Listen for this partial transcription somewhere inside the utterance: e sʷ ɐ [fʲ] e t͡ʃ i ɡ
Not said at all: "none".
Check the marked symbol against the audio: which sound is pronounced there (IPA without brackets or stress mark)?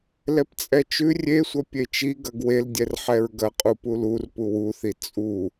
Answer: pʲ